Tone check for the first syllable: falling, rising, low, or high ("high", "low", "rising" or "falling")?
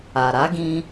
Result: low